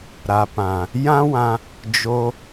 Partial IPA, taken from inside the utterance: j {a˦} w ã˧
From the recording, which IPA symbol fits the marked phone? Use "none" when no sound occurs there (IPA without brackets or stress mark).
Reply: ã˦